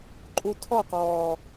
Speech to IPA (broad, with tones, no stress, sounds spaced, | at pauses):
ǃʼ u˧ tʰ ɔ˦˨ q ɔː˨